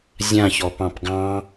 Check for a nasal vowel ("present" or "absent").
present